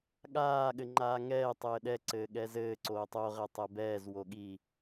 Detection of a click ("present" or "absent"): present